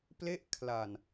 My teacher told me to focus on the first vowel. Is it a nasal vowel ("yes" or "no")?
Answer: no